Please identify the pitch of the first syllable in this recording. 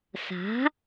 rising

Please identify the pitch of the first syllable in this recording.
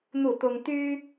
falling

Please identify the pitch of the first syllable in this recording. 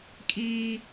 high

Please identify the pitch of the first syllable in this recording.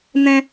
high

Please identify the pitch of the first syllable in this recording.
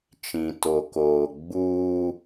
low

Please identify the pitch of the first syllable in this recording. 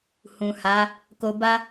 low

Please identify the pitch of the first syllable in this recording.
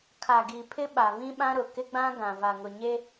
low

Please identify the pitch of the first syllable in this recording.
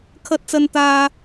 high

